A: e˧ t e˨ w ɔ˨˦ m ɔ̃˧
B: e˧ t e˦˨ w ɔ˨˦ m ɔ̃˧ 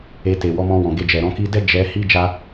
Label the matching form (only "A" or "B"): A